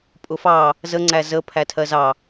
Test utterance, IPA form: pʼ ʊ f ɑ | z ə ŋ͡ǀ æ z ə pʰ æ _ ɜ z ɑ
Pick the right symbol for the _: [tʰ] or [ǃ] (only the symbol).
tʰ